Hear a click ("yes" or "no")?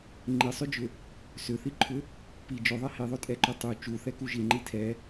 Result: yes